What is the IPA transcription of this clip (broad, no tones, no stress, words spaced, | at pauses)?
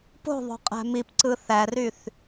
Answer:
po̤ðˤo̤ qʼæ̤mipǀɯ θæryθ